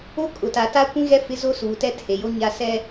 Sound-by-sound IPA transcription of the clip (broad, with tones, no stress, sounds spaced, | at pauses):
o˦ kʼ ʊ˨ t a˨ t a˦ kʷ ĩ˦ ɣ ɛ˦ f ɪ˦ z o˦ s uː˨ t ɛ˦ tʰ e˨ j o˦ ɲ a˦ s ɛ˦